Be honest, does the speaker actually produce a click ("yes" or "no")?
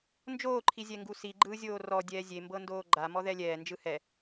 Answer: yes